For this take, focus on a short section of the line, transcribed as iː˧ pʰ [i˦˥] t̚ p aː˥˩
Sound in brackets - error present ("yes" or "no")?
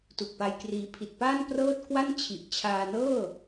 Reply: yes